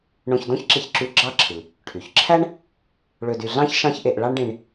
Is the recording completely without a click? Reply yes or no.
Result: no